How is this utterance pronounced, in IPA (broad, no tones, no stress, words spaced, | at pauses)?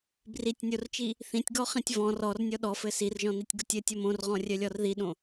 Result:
britʲnʲort͡ʃi | θĩtʲɡɔχĩtʲ vɔ̃ rɔrnʲɔ ɗɔfɘ sirʒɔ̃nitʲɡʊtʲ ɘtʲɔ mõrʁɔ̃rʲœlʲɔr ðiɗõ